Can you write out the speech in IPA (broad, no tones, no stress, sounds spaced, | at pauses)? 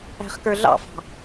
æ̤ χ k ə˞ ɮ ɑ̰ f ɑ̤